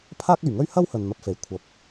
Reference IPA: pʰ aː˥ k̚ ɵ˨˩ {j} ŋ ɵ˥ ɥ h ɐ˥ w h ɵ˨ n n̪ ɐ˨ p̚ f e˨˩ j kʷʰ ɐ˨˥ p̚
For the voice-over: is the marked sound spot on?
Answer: no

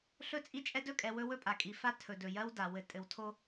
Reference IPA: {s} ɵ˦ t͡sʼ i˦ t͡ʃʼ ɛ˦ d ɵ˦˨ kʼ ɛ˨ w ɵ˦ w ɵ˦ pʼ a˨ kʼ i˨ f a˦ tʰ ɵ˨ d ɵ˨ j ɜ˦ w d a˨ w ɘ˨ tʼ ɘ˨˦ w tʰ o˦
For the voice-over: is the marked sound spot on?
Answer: no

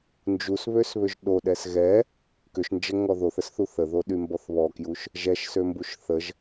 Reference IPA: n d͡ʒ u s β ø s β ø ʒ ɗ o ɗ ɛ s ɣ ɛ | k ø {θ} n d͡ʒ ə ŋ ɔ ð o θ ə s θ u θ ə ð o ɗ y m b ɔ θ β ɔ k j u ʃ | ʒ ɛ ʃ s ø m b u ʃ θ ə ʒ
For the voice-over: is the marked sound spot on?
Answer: no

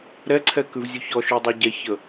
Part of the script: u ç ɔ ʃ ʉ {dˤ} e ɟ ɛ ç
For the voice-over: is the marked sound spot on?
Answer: yes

